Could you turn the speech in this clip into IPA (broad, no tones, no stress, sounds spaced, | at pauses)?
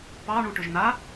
p ɑ ɳ u ʈ ʏ ʒ n a